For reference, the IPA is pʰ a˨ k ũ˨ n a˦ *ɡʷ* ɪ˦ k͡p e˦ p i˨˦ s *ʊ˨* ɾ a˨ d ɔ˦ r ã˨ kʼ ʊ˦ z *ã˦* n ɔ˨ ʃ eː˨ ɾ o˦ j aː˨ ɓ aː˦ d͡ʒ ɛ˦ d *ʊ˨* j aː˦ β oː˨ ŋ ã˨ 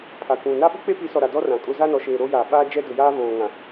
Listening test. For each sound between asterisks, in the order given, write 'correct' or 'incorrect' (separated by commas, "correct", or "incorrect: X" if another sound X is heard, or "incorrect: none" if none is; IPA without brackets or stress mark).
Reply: incorrect: ɓ, incorrect: ɔ˨, incorrect: a˦, correct